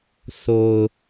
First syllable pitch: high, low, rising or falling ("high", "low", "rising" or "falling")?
low